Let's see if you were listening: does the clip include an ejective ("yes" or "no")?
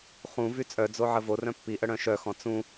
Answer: yes